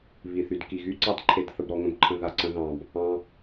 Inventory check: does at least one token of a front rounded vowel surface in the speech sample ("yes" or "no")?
yes